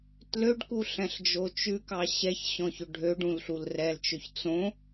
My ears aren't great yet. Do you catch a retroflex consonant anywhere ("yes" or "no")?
yes